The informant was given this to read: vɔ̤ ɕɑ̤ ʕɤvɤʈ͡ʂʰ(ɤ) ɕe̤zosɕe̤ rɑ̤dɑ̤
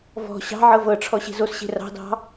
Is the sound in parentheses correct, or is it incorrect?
incorrect